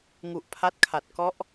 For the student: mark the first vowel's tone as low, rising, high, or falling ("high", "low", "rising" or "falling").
low